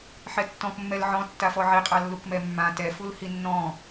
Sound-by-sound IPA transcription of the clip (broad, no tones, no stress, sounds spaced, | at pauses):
ħ ɛ tː ɔ̃ k mː ɛ l ʕ ɔ̃ tː a f ɔ ʕ i qʼ a lː u k m ɛ mː ã t ɛ f u l h i nː ɔ̃